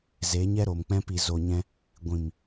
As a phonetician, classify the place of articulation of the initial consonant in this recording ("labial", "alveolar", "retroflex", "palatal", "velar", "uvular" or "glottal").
alveolar